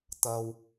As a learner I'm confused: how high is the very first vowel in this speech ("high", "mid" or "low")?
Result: low